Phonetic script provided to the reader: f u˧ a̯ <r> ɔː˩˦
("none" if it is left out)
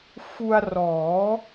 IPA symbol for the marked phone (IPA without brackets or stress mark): r